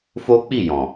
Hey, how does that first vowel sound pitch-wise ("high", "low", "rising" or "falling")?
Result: high